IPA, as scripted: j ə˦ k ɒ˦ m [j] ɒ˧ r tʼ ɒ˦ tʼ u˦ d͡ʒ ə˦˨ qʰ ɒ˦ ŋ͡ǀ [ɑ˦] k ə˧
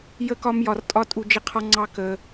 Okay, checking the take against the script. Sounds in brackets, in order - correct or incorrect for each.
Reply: correct, correct

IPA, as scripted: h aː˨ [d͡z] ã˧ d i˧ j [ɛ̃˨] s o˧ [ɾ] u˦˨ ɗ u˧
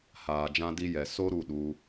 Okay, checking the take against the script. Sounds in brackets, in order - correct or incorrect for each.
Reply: incorrect: d͡ʒ, incorrect: ɛ˨, correct

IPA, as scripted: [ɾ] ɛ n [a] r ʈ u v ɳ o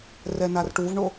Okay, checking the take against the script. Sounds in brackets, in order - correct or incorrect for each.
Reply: incorrect: r, correct

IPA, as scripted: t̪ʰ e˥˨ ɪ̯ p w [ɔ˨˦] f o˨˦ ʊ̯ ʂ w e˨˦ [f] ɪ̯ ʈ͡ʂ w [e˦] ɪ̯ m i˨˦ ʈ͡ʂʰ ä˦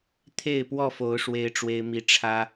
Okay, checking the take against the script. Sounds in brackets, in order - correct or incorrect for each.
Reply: incorrect: ɔ˥˨, incorrect: none, correct

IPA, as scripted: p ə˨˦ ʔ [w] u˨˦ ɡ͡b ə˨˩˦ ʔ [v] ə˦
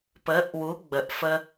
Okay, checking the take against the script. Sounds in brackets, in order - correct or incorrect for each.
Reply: correct, incorrect: f

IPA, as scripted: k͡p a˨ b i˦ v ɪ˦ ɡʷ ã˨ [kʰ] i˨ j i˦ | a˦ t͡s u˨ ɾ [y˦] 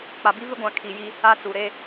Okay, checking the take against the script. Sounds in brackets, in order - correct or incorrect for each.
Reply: correct, incorrect: e˦

